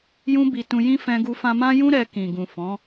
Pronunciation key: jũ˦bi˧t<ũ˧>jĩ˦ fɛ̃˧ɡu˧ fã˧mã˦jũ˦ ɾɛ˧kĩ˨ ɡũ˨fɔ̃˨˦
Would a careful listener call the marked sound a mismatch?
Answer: no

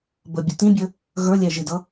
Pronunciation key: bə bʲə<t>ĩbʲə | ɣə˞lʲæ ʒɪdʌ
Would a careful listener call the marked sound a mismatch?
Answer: no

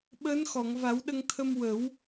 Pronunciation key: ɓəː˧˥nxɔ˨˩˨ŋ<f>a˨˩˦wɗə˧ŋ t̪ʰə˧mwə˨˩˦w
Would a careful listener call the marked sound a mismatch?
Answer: yes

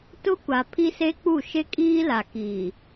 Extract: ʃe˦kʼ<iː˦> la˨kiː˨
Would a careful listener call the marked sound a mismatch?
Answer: no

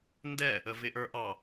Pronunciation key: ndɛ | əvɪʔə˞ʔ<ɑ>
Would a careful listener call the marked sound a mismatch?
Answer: no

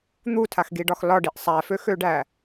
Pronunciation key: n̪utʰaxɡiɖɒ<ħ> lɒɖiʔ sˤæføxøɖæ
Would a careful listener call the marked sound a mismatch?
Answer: yes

